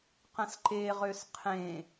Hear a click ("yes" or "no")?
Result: yes